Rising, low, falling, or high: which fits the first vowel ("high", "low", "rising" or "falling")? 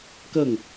falling